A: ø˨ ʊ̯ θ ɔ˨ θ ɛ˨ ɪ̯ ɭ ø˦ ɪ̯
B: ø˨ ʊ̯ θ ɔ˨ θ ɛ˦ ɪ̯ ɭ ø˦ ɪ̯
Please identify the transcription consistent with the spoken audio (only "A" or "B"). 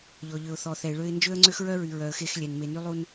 A